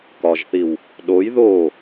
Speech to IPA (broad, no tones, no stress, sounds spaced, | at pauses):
k ɒ ʒ θ i w | ɗ o j ð o